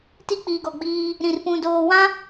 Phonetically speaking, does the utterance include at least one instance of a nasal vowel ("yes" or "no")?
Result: yes